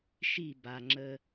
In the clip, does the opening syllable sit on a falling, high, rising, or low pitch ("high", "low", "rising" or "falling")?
falling